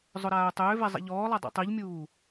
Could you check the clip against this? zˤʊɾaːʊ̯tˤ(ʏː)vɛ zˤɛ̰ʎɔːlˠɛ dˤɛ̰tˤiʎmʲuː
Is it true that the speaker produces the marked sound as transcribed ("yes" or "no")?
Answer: yes